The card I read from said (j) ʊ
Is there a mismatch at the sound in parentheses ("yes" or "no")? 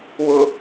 yes